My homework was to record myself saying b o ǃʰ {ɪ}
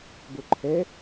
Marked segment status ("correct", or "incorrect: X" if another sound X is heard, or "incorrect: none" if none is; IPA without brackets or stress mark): incorrect: ɛ